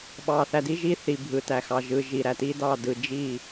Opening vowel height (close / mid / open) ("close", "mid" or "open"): open